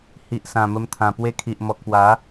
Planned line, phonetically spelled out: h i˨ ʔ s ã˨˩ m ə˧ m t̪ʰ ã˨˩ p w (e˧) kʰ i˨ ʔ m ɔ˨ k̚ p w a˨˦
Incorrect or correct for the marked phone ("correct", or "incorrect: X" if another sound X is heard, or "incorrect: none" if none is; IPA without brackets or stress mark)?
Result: correct